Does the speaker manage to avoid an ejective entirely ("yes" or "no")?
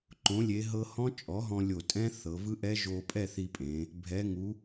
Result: no